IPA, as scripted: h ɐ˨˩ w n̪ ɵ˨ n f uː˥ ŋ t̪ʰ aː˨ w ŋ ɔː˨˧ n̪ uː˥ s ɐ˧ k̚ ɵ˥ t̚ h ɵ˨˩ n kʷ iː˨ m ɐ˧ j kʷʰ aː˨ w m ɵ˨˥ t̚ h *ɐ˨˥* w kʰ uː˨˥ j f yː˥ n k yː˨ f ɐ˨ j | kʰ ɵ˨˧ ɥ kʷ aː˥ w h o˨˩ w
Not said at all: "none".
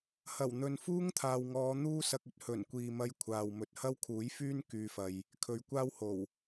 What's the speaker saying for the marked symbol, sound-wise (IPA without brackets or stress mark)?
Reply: ɐ˥